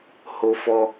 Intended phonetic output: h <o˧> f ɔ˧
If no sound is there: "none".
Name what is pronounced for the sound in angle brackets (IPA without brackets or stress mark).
o˧